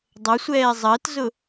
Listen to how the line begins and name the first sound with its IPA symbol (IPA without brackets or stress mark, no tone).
dˤ